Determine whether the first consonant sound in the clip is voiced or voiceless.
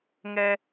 voiced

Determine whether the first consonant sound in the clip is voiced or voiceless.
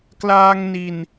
voiceless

